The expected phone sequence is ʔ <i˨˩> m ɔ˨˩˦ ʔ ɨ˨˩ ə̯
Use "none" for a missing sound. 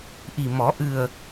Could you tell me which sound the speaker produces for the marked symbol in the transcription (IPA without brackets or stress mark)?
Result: i˨˩